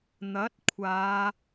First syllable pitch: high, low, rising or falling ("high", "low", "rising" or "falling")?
rising